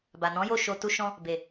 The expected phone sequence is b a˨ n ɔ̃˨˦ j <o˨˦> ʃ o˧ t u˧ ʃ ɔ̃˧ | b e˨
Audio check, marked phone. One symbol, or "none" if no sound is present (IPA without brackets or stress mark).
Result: o˦˨